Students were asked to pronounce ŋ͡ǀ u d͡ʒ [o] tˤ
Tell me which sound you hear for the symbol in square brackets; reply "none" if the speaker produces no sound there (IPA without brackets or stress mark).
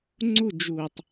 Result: u